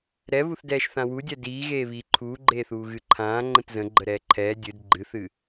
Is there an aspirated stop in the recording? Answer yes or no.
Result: yes